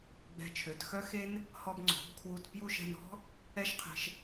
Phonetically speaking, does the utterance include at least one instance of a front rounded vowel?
yes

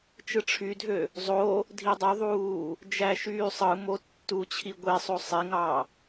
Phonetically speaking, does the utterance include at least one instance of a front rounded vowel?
yes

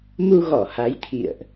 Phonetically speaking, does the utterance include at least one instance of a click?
no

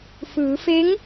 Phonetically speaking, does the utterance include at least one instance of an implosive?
no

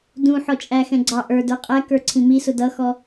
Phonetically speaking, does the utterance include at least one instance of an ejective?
yes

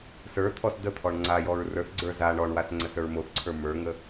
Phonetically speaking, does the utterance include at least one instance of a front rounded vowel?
no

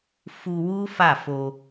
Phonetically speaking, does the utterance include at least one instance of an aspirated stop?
no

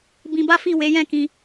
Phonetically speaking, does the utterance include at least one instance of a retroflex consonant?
no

